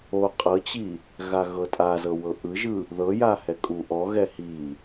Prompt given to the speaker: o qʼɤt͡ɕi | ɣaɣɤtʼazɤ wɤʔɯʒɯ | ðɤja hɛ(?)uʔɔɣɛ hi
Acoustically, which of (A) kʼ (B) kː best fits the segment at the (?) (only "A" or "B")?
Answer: A